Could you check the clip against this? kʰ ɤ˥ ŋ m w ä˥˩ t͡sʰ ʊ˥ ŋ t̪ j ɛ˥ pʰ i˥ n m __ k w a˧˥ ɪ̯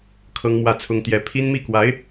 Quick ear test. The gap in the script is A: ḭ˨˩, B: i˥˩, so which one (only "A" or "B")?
B